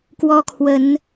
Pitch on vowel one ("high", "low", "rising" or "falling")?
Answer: high